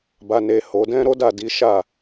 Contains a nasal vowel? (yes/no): yes